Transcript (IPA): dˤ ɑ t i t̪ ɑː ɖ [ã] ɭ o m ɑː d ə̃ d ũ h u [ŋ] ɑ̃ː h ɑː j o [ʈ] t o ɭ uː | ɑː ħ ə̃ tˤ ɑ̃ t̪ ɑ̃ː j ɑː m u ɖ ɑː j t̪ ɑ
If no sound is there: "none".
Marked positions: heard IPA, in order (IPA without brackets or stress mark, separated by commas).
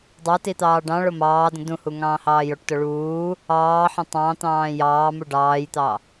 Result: ɑ̃, ŋ, ʈ